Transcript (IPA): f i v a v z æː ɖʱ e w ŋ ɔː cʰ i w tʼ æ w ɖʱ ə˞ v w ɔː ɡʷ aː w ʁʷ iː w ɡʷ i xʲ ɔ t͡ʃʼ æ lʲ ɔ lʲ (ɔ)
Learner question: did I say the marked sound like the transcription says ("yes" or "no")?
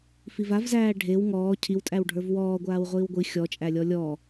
yes